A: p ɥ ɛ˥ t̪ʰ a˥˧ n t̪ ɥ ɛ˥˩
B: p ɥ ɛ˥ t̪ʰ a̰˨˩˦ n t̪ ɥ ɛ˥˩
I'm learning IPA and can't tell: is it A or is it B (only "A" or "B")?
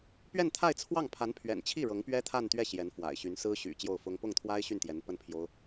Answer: A